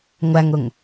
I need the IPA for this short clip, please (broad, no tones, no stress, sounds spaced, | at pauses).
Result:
ŋʷ æ ŋ ʊ ŋ